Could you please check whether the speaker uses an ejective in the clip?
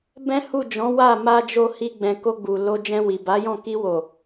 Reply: no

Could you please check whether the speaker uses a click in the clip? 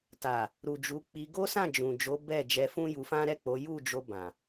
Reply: no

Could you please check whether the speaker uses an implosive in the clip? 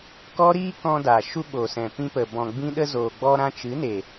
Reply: yes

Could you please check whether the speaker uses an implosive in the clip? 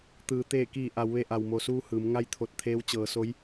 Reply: no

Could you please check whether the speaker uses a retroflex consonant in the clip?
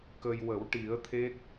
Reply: yes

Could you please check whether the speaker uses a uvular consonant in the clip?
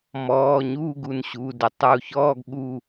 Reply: no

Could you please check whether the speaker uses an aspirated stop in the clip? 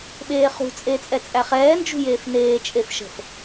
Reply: no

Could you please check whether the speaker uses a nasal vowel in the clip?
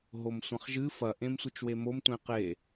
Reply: yes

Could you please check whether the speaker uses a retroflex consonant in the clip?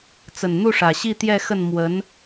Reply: yes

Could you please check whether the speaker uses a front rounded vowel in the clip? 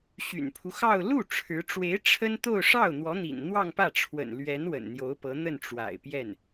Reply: yes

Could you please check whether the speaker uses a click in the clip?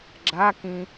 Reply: yes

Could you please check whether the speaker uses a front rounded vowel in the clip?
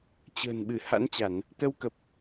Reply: no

